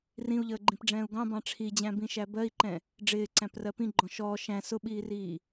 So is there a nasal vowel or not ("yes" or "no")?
yes